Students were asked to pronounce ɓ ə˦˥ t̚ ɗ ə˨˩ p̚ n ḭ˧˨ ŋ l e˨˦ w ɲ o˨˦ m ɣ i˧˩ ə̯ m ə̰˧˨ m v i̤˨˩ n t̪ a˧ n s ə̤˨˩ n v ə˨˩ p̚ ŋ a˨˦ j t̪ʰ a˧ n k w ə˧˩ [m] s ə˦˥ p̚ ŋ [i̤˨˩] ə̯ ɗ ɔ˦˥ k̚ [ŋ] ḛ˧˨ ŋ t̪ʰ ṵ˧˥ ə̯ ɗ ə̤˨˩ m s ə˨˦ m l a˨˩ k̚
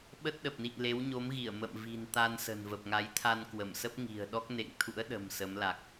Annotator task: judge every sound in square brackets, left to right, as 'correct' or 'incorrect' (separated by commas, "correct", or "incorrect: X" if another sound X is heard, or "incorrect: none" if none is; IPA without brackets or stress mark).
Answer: correct, correct, incorrect: n